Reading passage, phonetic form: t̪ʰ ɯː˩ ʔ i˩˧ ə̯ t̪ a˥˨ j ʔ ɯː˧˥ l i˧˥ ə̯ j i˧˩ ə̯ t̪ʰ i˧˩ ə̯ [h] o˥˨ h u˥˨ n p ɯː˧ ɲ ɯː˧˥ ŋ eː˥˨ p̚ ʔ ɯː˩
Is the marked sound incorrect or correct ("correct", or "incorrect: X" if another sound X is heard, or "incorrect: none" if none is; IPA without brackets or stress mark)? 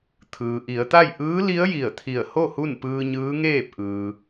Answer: correct